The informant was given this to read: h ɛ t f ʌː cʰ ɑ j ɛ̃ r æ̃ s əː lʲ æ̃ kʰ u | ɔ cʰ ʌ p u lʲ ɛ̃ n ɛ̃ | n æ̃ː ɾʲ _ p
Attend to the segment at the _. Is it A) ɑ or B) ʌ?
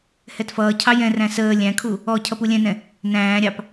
A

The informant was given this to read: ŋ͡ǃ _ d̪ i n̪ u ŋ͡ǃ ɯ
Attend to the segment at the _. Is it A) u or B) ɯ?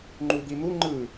A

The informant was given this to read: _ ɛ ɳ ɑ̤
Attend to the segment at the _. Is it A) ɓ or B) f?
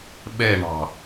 A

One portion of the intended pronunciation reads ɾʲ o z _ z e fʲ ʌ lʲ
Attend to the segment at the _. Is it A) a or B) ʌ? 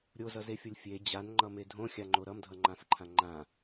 B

